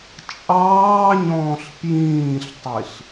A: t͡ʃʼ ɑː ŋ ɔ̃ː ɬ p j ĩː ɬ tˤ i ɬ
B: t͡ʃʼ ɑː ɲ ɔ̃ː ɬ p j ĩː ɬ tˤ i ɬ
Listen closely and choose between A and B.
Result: B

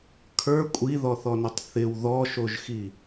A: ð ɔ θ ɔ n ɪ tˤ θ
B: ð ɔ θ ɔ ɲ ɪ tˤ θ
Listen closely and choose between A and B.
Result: A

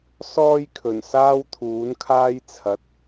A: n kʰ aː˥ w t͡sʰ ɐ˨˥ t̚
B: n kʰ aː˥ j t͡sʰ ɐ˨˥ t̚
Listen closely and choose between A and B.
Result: B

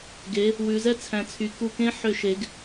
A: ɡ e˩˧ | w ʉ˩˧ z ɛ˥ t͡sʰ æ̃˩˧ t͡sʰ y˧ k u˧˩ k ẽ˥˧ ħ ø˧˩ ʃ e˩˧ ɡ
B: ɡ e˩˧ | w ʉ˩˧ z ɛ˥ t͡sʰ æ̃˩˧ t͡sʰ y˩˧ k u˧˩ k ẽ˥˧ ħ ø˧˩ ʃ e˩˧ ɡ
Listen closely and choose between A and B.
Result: B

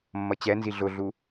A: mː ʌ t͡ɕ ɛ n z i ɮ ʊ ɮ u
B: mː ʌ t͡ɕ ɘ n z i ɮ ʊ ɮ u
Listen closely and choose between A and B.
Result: A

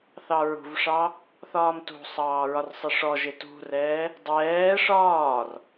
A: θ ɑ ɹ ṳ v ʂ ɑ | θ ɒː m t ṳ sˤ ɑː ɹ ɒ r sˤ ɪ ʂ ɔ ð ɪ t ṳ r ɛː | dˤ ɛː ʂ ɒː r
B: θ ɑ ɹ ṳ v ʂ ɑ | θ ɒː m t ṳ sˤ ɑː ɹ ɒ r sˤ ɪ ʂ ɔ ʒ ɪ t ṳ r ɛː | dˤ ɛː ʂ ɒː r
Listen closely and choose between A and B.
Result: B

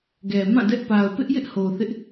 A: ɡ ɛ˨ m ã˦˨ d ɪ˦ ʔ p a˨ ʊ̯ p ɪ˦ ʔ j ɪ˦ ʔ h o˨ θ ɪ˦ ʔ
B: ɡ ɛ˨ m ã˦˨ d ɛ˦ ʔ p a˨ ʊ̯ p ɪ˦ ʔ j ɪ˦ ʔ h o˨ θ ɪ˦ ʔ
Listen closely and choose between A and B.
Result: B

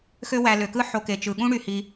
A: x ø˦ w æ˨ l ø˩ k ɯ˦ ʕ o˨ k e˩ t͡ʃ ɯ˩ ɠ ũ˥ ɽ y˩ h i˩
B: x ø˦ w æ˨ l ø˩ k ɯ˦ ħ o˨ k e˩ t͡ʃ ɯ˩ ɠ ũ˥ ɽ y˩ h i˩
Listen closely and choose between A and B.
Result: B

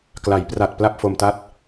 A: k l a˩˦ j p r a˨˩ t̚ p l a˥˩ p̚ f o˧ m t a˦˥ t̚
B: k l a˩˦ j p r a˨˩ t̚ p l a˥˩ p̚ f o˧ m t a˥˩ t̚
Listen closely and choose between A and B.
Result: B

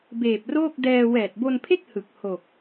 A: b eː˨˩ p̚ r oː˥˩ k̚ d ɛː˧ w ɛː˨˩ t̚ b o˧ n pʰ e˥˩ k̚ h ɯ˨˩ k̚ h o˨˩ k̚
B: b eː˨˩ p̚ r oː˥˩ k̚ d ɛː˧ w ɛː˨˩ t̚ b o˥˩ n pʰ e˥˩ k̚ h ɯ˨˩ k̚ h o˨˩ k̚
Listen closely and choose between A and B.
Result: A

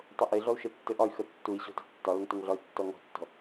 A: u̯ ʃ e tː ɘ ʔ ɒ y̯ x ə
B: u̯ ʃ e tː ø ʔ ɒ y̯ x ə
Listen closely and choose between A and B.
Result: A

